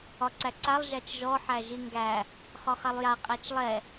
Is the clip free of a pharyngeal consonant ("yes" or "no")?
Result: no